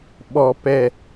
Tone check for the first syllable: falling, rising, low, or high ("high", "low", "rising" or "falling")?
low